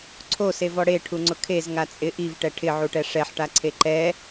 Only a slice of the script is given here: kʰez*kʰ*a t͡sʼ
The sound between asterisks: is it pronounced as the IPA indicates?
no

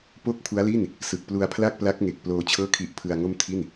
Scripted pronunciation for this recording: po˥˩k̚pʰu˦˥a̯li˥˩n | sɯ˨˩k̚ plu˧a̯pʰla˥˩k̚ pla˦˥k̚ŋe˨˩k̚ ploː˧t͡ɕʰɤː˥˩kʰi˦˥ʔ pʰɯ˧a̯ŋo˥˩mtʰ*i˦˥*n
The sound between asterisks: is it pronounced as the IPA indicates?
no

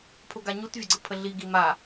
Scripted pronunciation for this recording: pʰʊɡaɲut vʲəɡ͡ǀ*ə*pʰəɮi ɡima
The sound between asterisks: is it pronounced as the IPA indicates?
yes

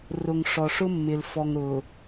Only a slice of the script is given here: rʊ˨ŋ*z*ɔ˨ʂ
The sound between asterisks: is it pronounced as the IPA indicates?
no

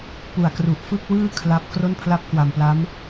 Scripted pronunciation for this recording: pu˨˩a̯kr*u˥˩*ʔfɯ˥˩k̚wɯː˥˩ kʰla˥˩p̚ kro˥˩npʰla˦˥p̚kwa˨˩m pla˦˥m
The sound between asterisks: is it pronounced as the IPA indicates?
no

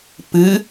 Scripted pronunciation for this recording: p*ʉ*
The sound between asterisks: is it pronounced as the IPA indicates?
no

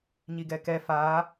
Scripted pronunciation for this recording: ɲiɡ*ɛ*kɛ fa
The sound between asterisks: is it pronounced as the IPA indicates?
yes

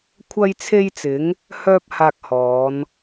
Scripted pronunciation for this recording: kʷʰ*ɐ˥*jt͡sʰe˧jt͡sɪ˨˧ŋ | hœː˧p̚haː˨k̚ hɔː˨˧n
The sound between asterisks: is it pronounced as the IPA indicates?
no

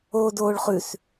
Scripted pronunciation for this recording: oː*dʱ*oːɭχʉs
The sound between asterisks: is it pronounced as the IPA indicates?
no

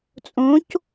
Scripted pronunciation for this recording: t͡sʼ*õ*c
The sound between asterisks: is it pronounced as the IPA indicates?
yes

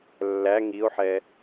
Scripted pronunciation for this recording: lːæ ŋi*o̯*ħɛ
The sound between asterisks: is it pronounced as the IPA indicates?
yes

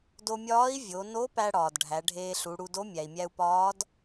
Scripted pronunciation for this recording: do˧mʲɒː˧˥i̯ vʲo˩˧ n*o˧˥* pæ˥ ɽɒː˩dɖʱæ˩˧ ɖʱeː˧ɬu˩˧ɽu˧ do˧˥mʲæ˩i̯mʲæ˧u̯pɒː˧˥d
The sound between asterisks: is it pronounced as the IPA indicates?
yes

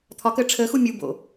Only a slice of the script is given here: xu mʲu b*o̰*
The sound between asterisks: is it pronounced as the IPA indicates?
yes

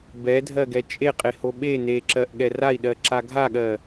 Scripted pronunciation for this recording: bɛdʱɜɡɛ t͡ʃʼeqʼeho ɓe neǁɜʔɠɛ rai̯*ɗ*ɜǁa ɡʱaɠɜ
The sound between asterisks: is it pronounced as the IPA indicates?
yes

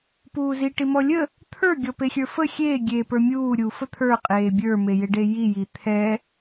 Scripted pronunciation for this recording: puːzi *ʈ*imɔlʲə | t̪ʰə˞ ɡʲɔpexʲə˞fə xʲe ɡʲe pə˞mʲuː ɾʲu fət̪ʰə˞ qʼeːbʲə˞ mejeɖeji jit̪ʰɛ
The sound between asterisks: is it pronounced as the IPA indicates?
yes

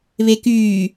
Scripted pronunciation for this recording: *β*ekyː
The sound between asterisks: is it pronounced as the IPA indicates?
yes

